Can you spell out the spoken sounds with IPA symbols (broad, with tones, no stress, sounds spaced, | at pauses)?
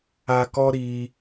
a˧ k ɔ˦ ɾ i˧